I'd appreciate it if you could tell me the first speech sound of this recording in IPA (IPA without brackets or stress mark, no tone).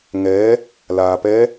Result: ŋ